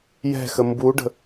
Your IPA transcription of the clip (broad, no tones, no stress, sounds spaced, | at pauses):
j ɛ̤ x ə m b u ɖ ə̤